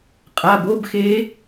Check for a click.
absent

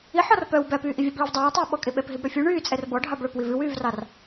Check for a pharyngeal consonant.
present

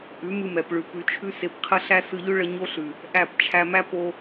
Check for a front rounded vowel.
absent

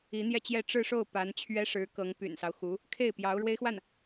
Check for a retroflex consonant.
present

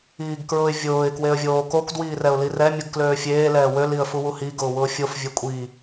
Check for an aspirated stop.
absent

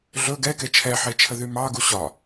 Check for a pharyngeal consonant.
present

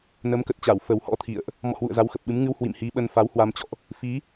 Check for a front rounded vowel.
absent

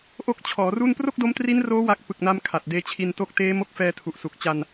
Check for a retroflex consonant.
absent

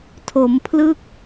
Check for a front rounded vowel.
absent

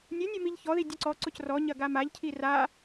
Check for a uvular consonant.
absent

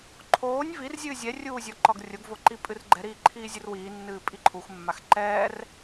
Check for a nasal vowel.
absent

